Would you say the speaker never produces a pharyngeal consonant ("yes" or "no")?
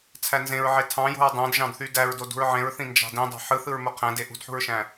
no